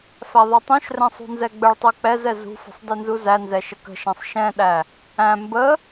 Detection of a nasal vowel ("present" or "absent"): present